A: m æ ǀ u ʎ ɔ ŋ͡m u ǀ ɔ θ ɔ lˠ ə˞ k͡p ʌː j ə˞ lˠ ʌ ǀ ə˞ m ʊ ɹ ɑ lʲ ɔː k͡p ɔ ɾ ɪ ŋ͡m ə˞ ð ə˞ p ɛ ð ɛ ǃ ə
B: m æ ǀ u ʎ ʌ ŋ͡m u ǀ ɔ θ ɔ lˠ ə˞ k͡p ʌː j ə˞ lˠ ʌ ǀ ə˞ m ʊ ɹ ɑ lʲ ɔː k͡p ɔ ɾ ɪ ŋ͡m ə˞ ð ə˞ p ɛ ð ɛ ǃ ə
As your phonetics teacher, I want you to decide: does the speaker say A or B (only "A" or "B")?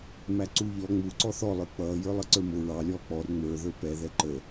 A